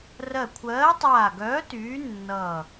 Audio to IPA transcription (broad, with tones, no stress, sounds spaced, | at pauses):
r ɜ˧˩ kʷʰ ɜː˨˥ tˤ aː˧˩ ɡ œː˨˥ t yː˨˥ nː ʌː˧˩